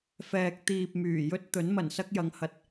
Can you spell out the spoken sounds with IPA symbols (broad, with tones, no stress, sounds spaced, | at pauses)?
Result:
f ɛː˨ k̚ t̪ iː˨ p̚ m yː˨˩ j ɵ˥ t̚ t̪ ɵ˨˥ n m ɐ˨˩ n s ɐ˥ k̚ j ɐ˨˧ ŋ h ɐ˨ t̚